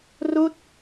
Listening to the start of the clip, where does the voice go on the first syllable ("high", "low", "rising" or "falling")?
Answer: falling